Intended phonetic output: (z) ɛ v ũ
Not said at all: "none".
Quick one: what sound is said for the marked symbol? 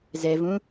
z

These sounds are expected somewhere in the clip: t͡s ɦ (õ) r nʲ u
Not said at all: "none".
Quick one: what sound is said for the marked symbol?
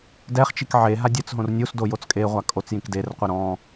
õ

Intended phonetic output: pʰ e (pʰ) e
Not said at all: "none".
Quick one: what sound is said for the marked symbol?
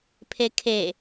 kʰ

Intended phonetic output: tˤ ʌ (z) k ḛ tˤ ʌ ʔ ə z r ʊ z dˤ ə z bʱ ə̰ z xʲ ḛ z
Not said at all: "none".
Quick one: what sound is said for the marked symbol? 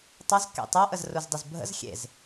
z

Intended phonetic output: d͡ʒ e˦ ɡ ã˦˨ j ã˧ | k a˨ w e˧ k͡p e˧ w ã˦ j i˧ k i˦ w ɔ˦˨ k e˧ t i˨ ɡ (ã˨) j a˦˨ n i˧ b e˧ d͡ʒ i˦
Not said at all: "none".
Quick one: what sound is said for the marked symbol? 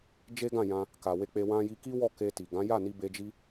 ã˨˦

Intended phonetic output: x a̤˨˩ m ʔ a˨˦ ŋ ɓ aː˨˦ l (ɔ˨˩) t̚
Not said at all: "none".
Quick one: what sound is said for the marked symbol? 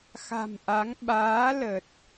ə˨˩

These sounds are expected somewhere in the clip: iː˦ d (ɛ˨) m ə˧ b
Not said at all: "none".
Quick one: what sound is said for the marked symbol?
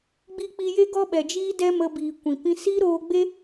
ɛ˦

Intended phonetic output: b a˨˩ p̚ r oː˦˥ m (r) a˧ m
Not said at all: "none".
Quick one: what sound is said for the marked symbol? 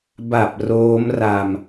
r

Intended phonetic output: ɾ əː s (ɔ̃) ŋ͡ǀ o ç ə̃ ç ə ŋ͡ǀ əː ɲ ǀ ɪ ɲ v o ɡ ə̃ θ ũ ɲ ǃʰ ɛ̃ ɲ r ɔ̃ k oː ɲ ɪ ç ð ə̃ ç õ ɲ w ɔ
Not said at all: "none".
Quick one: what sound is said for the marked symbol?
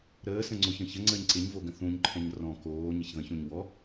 ə̃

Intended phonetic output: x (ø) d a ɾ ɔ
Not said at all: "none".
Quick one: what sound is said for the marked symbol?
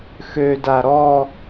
ø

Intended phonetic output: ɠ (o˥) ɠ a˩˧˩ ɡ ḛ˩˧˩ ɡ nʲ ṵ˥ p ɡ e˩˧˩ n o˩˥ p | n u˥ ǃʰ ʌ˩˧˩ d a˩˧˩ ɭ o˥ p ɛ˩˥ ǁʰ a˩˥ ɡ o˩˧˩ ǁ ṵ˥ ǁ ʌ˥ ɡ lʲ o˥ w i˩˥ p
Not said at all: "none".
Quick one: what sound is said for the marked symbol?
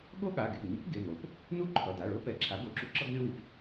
o˥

